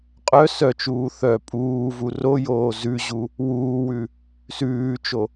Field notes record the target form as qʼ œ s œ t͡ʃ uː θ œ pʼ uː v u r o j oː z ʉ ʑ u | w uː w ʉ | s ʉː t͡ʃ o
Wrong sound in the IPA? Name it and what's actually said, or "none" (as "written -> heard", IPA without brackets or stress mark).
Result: none